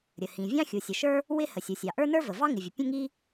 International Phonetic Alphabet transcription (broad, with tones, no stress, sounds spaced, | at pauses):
ɾʲ ə˩ h ĩ˩ vʲ ɑ̃˥ xʲ u˩ sʲ ə˩ ʃ ə˞˥ | w ɪ˥ h ə˩ sʲ u˩ sʲ ɑ˩ ʔ ə˞˥ n ə˞˥ v ə˩ v ɑ˥ ŋ ɪ˩ vʲ ə˩ pʲ ə̃˥ ŋ i˥